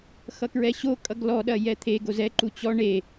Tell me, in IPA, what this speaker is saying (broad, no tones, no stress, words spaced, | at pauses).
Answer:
xʌkɹɛɕo kʼʌɡlɔ ɗɐjɛt̪ʰe ɡozɛ ǃut͡ɕɔ ɳe